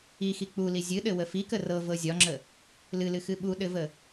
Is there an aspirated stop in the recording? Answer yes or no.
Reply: no